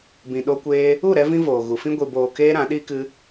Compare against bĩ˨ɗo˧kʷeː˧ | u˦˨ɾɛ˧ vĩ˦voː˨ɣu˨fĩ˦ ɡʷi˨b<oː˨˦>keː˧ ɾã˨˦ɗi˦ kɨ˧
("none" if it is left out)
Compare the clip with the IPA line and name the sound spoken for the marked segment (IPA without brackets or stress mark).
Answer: oː˨